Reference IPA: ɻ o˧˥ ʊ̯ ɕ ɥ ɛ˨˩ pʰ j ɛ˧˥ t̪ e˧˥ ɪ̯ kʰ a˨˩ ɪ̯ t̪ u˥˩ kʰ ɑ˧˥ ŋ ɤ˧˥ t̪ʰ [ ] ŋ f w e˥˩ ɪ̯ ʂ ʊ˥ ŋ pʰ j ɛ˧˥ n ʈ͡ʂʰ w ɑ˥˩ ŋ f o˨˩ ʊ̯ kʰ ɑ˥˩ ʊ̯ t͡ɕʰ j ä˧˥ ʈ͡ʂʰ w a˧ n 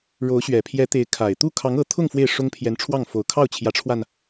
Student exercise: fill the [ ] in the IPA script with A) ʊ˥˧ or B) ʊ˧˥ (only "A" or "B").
A